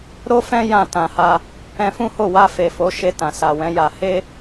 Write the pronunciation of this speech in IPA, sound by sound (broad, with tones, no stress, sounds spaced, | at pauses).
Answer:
ɾ o˦ f ɛ̃˦ j ã˦˨ t ã˧ h a˦ | ɛ̃˧ f ũ˦ h o˦˨ w a˧ f e˨ f o˨˦ ʃ e˧ t ã˨ s a˨ w ɛ̃˨˦ j a˧ h e˦